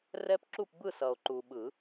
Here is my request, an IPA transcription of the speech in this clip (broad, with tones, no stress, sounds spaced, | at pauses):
r ɛ˦˥ p ǁ u˥˨ p b ɯ˥˨ s ʌ˨ o̯ ǃ u˨ ɓ ɯ˨˩˦